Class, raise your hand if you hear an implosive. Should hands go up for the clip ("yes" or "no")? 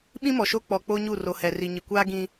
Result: yes